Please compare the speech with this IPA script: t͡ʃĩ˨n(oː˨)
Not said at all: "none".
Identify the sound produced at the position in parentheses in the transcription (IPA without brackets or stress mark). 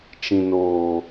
oː˨